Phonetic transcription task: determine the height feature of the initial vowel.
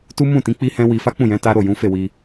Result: high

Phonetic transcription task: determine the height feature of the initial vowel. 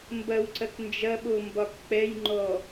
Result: low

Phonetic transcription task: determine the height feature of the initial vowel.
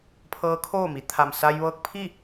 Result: mid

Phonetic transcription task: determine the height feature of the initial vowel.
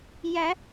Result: low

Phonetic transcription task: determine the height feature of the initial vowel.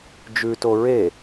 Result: high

